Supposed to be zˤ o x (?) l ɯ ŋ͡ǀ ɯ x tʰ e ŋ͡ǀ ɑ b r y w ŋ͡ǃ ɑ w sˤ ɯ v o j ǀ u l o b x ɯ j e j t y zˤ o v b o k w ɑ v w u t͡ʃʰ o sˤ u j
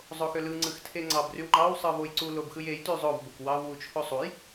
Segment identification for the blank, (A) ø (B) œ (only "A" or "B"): A